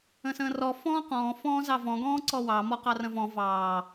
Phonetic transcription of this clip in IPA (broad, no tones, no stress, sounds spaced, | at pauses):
ə̃ s ə̃ː r ɔ f ɔ̃ː q ɔ̃ː f ɔ̃ː z ɑ v ɔ̃ ɡ ɔ̃ː ǀ ɔ w ɑ m ɔ q ɑ r ə̃ v ɔ̃ v ɑː